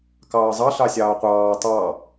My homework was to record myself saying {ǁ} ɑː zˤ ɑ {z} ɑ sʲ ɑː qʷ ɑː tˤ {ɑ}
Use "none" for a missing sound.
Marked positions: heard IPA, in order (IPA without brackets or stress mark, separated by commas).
k, ɬ, ɑ